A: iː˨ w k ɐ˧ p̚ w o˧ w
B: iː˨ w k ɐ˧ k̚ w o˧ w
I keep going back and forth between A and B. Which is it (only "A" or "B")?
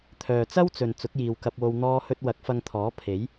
A